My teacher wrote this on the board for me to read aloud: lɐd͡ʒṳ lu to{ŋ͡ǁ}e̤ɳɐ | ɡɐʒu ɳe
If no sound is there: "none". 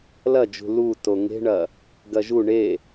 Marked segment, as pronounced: ŋ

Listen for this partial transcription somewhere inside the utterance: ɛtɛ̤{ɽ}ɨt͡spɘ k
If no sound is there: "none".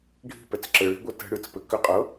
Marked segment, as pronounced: ɽ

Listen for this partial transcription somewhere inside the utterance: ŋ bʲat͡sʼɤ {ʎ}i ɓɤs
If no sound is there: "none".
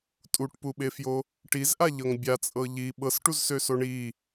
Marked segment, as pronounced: ʎ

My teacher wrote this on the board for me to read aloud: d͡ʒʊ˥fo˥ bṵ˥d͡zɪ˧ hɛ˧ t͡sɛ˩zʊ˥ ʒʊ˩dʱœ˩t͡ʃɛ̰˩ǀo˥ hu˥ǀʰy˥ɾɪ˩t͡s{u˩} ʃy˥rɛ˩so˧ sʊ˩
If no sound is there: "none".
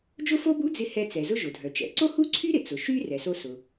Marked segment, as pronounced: ʊ˩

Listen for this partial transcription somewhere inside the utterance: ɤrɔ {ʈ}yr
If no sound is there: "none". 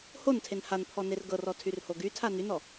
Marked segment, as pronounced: tʰ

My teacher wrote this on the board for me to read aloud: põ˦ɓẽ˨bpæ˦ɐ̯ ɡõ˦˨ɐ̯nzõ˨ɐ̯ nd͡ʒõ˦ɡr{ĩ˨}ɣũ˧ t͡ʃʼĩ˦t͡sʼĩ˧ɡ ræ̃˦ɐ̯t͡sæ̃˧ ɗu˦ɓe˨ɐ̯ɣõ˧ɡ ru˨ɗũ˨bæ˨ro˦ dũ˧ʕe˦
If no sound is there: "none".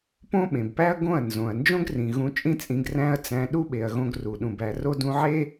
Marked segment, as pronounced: ĩ˨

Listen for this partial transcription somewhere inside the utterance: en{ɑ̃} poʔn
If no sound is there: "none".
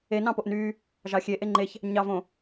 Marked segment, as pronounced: ɑ̃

